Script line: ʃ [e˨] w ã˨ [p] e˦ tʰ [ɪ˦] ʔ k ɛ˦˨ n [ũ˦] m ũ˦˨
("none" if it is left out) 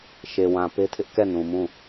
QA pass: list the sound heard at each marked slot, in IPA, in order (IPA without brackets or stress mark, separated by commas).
e˨, p, ɪ˦, ũ˨